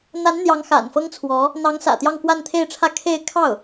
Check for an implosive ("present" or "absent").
absent